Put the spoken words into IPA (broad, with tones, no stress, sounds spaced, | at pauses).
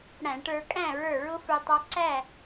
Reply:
ɽ æ̃˧˩˧ ʈ ə˞˧ kʼ æ̃˥˩ ɹ ə˞˧˩ ɹ ʊ˧ f ə˞˧ tˤ ɑ˧ ǀ æ˥˩